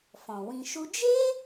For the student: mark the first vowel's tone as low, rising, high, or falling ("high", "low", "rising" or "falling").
low